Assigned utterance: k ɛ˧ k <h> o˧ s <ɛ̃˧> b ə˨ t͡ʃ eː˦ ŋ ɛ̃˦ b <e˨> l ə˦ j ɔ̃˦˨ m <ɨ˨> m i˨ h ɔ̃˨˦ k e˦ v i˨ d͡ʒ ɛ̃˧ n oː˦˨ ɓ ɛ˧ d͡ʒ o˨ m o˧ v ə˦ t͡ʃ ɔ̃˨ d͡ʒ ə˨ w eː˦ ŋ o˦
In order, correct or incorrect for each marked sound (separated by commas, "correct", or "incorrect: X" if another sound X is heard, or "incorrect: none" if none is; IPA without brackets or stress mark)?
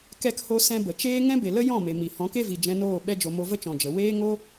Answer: correct, correct, correct, incorrect: e˨